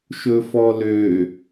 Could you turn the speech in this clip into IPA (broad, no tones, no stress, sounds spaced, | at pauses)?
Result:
ʃ ɵ f ɔ l ø